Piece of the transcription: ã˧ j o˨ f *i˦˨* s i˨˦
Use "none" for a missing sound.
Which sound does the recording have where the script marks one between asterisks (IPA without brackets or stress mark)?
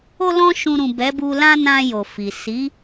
i˨